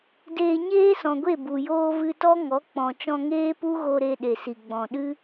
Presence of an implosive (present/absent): present